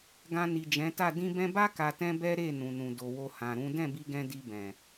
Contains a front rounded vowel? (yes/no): no